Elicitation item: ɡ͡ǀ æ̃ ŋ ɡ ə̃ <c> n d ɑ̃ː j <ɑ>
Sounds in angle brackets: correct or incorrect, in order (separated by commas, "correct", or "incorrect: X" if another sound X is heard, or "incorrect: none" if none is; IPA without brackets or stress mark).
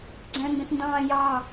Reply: incorrect: t, correct